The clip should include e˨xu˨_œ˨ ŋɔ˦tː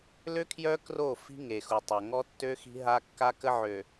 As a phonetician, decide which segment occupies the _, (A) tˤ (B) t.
A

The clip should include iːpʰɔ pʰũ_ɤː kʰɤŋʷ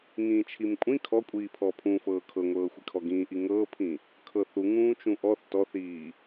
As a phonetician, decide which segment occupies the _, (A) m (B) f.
B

